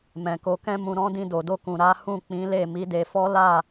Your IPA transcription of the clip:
mɛ̃˨ko˧kɛ̃˦mũ˧ ɾɔ̃˦ dĩ˧do˨do˧kũ˨ ɾa˨˦hũ˦˨ k͡pĩ˨˦le˦˨ mi˨˦de˧fɔ˦ la˦˨

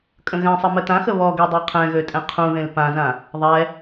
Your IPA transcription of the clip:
kʼə̃ɣɛ̃sˤə mətãxə βɔɡe dˤeqʰɛ̃ɣø tʼɛ̃qʰũðẽl pãzã | ðˤɛ

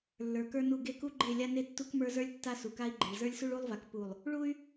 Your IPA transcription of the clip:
lːə˞˨kə˞˦nu˦˨ ɡe˦ku˦ɡ͡ǃe˦˨ lʲa˦ne˦ tːu˦kmə˞˦zə˞˦lʲ tːa˦su˨ka˦i̯ɡ͡ǃe˨ɭ zə˞˦lʲsu˦ɭu˦lˠva˨k pu˨lˠ | ɭu˦y̯

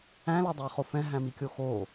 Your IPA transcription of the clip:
æ̃lædˤɛχo fɛ̃ɦæ̃mikʲo xo

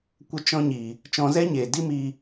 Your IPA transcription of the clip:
kʷə˧t͡ʃɔ̃˧ɲi˨ | t͡ʃɔ̃˧zɛ˦ɲeː˨ di˦mi˧

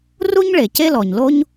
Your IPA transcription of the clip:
ru˥ɲɭe˩ ce˥lɔ˩ɲlo˥ɲ

